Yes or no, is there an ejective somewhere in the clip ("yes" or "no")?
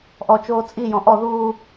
yes